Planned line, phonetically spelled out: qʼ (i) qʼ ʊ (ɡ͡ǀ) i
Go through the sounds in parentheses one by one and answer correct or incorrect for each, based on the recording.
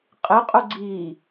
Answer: incorrect: ɪ, correct

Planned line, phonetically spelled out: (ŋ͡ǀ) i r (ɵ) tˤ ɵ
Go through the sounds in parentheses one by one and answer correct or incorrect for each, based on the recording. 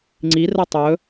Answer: correct, incorrect: ə

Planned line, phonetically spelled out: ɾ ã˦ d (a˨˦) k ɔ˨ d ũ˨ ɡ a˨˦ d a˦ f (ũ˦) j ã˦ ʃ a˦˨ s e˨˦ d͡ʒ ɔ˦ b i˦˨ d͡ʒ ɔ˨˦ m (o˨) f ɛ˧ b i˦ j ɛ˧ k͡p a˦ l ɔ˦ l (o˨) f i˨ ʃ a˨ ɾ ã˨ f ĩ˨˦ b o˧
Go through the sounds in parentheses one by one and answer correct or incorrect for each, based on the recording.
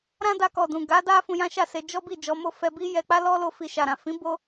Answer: incorrect: a˧, incorrect: ũ˧, incorrect: o˦˨, incorrect: o˧

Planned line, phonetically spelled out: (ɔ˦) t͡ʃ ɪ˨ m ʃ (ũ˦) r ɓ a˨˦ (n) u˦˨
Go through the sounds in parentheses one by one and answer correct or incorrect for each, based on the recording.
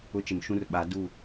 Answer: incorrect: ʊ˦, correct, incorrect: d

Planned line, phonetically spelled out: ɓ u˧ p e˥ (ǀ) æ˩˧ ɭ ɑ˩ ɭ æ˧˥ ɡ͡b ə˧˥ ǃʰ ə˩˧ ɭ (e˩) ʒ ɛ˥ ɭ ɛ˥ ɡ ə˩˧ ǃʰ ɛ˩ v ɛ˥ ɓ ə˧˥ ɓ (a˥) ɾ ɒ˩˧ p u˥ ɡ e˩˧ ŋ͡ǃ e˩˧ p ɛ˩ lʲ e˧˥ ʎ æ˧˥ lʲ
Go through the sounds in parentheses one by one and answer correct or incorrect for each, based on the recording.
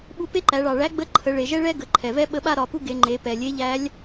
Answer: incorrect: ǃ, correct, correct

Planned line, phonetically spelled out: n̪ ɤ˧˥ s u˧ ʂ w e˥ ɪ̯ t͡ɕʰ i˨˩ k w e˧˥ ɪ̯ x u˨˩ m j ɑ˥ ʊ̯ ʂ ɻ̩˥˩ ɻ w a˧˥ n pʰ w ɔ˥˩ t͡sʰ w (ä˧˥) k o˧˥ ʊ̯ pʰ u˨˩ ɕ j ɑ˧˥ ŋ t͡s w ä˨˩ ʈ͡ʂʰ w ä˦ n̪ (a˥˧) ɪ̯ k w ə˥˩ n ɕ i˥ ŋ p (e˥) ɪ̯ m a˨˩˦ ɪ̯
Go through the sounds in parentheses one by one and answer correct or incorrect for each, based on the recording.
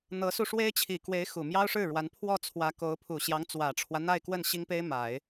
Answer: correct, correct, correct

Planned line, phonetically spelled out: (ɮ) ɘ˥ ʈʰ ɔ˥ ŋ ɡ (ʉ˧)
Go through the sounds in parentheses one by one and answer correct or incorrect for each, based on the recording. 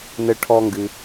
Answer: incorrect: n, incorrect: ɨ˧

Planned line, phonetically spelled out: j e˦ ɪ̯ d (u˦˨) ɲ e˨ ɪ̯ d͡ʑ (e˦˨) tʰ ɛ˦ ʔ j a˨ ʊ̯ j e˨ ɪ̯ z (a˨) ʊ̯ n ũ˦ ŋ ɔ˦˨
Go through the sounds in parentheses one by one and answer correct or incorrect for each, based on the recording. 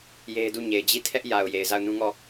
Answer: correct, incorrect: i˦˨, incorrect: a˦˨

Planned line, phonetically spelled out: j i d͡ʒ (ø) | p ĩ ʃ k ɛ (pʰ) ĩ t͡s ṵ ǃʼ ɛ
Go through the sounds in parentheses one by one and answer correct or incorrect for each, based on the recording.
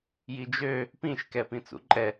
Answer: correct, incorrect: p

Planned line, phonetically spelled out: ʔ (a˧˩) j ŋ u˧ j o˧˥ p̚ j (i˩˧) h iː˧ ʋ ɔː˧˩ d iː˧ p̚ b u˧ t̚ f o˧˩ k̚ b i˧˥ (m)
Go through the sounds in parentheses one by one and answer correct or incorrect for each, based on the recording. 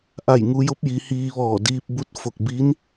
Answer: correct, correct, incorrect: n

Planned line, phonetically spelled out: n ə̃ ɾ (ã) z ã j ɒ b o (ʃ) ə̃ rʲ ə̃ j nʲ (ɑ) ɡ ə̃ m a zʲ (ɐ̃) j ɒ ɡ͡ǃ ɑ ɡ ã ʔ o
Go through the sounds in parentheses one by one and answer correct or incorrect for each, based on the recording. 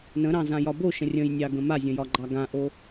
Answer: incorrect: ɑ̃, correct, correct, incorrect: ə̃

